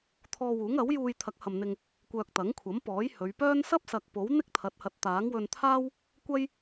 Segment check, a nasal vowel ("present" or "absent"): absent